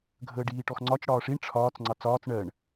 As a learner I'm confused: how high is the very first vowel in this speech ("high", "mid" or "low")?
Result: mid